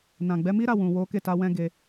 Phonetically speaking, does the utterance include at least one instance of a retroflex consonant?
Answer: no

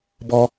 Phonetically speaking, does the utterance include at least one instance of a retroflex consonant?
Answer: no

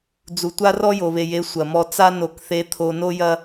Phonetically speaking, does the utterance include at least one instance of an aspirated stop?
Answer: yes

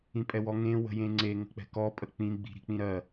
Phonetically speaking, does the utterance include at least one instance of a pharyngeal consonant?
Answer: no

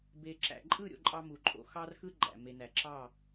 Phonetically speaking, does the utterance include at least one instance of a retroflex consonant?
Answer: no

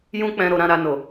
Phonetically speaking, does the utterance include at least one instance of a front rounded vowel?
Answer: no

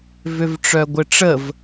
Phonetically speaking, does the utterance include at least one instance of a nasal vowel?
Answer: no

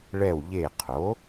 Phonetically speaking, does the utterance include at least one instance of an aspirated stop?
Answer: yes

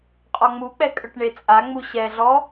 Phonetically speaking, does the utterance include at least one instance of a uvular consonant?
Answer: yes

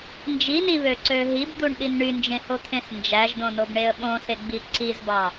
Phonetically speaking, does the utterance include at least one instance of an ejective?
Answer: no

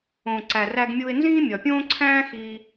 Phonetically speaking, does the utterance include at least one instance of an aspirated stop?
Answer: yes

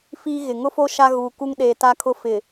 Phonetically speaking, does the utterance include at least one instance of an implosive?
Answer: yes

